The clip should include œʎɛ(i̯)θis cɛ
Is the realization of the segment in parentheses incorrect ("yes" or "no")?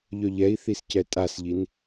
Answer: no